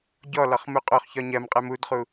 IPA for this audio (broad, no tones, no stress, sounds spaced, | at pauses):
ɟ ɔ l ɒ χ m u qʼ o χ ç ɒ ɲ ɜ m qʼ ɛ m u d χ u